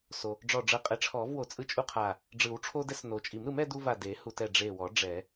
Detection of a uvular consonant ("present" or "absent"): present